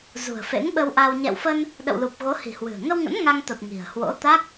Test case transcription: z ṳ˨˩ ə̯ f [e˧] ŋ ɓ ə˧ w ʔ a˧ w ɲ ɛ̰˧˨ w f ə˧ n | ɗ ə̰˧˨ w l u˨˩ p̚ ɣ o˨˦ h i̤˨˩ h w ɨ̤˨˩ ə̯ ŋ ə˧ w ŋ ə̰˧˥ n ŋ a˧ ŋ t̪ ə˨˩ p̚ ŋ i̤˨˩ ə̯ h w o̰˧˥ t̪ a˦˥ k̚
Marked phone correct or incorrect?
incorrect